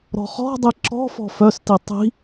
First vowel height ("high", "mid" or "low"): mid